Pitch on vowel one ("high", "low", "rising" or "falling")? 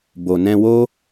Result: low